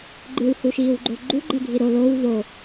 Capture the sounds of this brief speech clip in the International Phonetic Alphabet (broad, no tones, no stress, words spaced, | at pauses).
ɡ͡ǃɨwhuʃiːwɡ͡ǃo ɡ͡ǃuɡ͡ǃɛɡʱi ɾo low vo